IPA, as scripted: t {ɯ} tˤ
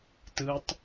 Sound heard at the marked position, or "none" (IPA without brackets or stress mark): ɯ